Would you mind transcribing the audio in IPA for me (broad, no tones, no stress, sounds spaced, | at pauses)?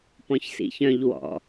p ɔ̃ ç s ḭ ç œ̃ ʎ w ɔ̰